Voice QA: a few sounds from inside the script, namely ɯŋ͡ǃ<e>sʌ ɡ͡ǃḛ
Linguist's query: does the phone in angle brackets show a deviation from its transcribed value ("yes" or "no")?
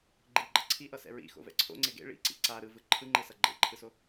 no